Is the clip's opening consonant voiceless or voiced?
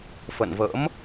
voiceless